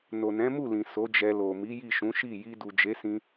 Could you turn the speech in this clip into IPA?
n o˨ n ɛ̃˨˦ m u˦˨ l ĩ˨ s o˨˦ d͡ʒ ɛ˧ l o˨ m i˨˦ j i˦˨ ʃ ũ˨˦ ʃ i˦˨ j i˧ d u˨ d͡ʒ e˨˦ s ĩ˧

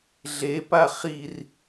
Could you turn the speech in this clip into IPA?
ɮ e p a χ i r

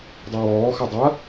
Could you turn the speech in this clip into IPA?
dˤ e w ɔː x ɐ dˤ ɐ

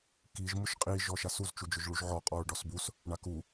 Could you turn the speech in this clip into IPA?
k i ʒ m ʊ ʃ qʼ i ʒ ɔ ʃ a s u z t͡ʃ u d͡ʒ ʊ ʒ ɭ u ʒ ʕ ɔ qʼ ɔ ɹ ɖ ɔ s b u s | ɳ a k u

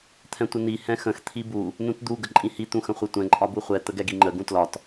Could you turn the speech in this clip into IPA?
t̪ʰ ɛ̃ tʷ ə n i h ɛ̃ x ə̃ x t̪ʰ i b u | n ũ t d̪ u ɡ ə ǃʼ ĩ h i t̪ ũ x ə̃ χʷ ɛ tʷ ɛ̃ ǃʼ ɒ b u χʷ ɛ t̪ ə ɡ ɛ ɡ i ŋ͡ǃ ə ɡ ũ t l ɒ t

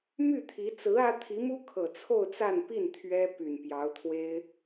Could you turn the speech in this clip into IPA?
m y˥˩ t̪ʰ i˧˥ t͡s ɹ̩˧˥ ä˥ t̪ʰ i˧˥ m u˥ kʰ ɤ˨˩ t͡sʰ o˥˧ ʊ̯ t͡s a˥˧ n p i˥˩ n t̪ʰ ɥ ɛ˥ p y˨˩ n p j ɑ˧˥ ʊ̯ t̪ʰ w e˥ ɪ̯

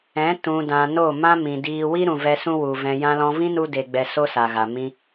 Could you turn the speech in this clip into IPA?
ɛ̃˨˦ t ũ˨ d ã˨ n o˦˨ m ã˦ m ĩ˨ d iː˧ w i˦ ɾ ũ˨ v ɛ˧ s ũ˦ w u˨ v ɛ̃˧ j ã˧ l ɔ̃˧ v ĩ˦ n u˦ d e˧ ɡ͡b ɛ˧ s o˦ s a˨ ɣ a˨ m ĩ˧

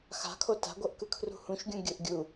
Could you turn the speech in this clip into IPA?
x a̤ kʰ o t a̤ ɡʷ ɤ ʔ k ɯ kʰ r ṳ h ũ ʃ ɡʲ ũ ɡʲ ɯ ʔ ɡʲ u

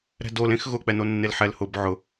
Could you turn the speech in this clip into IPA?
ɾ ɛ̤ d o l ẽ x ɣ ʊ k͡p ɛ n o nː e l ħ ɛ l h ʊ b ʕ ʊ

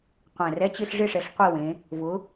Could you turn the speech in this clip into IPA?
qʷ ɛ̃˨˩ r ɛ˧˥˧ t͡ɕ ɪ˥˧ ɬ ʐ ɪ˥˧ ʂ ɛ˨˦ ɬ qʷ i˥˧ w ẽ˨˦ | v ʊ˨˦

